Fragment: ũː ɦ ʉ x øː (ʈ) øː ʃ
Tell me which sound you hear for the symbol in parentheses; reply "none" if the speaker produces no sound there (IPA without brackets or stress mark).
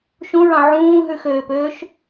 p